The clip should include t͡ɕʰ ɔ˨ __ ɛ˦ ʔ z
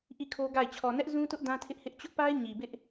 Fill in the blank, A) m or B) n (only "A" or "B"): B